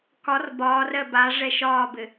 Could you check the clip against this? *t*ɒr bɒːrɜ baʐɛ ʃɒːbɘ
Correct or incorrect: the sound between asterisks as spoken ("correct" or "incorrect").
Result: incorrect